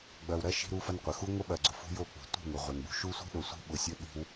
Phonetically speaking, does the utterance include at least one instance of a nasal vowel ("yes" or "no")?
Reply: no